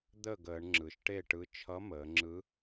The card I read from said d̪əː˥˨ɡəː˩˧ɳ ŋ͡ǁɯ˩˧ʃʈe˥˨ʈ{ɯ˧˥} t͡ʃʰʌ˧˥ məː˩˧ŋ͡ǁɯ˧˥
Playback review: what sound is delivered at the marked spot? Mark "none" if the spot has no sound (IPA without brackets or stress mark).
ɯ˧˥